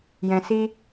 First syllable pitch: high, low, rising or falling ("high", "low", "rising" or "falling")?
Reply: low